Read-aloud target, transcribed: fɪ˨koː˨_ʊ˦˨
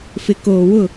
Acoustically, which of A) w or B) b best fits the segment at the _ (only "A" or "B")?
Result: A